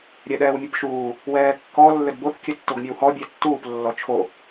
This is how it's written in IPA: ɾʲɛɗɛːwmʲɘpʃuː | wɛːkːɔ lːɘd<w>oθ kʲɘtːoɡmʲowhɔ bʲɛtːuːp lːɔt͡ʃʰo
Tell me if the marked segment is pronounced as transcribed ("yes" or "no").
no